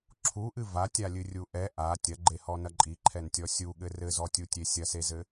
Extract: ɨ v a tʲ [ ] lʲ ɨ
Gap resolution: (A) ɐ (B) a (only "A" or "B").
B